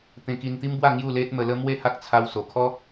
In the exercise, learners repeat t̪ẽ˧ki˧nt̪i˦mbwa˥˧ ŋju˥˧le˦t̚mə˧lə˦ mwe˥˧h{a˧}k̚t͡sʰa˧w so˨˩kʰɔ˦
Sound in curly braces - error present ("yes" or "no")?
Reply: yes